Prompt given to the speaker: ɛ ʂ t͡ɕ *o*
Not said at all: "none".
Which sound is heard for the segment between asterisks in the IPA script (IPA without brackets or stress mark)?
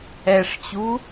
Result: u